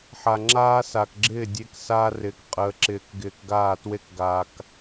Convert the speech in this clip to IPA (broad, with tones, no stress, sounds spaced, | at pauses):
ħ a˨ ŋ͡ǁ aː˦ s a˨ k ɡ͡ǁ ɪː˦˨ dʲ e˦ k s aː˦ r ɪː˨ k qʼ əː˨ ǁ ɪː˨ k ɡ ɪː˨ k ɡ aː˦˨ t w e˦ k ɡ a˨ k